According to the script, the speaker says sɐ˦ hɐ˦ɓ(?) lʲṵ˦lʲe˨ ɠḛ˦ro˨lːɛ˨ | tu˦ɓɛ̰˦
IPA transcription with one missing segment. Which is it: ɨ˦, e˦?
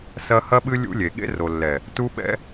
ɨ˦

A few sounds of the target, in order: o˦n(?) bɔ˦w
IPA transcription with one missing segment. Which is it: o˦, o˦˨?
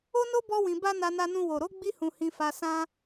o˦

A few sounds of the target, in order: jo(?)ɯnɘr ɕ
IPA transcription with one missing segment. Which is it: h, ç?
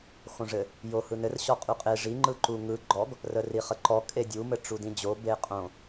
h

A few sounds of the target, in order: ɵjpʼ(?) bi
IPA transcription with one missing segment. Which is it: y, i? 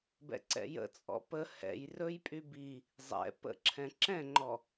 y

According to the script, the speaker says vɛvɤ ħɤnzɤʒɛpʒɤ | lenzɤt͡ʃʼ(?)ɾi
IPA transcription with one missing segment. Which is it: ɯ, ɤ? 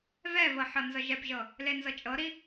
ɤ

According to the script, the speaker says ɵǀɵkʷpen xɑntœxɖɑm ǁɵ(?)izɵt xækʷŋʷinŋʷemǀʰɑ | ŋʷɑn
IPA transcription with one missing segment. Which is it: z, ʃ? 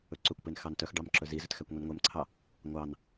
z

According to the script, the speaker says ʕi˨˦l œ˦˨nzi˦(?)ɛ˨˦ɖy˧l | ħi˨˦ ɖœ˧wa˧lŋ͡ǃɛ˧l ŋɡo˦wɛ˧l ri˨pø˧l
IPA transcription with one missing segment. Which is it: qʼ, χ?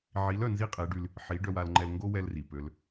qʼ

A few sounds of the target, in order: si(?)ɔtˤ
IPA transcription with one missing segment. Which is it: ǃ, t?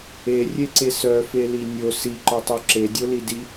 ǃ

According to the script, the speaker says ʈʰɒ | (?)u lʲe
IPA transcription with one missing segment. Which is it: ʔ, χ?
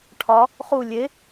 χ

